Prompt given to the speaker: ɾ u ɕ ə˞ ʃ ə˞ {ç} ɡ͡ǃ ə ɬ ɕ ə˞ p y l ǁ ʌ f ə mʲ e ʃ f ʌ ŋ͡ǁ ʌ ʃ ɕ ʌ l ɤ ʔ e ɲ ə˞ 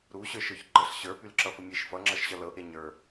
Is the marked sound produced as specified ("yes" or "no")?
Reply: yes